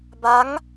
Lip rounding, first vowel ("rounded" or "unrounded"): unrounded